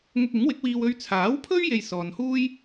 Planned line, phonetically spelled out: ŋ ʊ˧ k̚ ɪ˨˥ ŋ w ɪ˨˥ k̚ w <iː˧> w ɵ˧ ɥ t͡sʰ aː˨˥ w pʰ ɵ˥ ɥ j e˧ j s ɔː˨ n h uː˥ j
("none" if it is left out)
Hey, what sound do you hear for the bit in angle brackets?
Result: iː˧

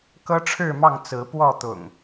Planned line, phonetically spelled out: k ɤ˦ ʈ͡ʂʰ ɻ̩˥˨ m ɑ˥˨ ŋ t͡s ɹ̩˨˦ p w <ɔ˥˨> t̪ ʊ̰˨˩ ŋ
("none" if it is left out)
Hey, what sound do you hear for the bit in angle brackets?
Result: ɔ˥˨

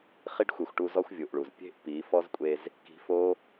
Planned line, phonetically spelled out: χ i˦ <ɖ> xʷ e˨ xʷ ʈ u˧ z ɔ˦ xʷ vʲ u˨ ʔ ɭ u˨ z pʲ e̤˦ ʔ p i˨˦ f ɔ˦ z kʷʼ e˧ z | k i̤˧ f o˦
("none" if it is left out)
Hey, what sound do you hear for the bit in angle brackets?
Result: ɖ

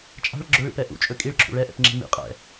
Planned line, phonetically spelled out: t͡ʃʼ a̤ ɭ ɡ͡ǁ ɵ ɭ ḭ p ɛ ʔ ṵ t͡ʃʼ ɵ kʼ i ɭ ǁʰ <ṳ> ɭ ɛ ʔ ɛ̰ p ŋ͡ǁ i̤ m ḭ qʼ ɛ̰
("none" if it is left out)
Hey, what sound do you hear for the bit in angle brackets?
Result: ṵ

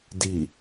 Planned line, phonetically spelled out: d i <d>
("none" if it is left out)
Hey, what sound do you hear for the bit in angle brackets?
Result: none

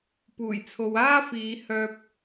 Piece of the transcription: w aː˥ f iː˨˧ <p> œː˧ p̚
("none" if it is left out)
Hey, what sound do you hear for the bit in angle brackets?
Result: h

